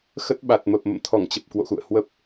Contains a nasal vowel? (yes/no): no